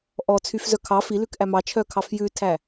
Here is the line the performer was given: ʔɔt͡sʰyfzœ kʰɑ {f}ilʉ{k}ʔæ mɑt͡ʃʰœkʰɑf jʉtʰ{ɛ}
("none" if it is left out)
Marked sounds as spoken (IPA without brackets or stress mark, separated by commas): f, k, æ